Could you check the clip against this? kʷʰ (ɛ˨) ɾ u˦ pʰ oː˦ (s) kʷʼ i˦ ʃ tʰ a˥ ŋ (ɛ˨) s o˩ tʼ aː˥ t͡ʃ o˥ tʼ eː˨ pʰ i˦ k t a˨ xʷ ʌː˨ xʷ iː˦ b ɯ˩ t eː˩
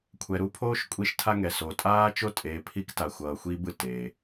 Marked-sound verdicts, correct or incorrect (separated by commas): correct, incorrect, incorrect